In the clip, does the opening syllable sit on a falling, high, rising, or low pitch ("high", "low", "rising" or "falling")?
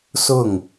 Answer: falling